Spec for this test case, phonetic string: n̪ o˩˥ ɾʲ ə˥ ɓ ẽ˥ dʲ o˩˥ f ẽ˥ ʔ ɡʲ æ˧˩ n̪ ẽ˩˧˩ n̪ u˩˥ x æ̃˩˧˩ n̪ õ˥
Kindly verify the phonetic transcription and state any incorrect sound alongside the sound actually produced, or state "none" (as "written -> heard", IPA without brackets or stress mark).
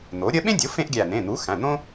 none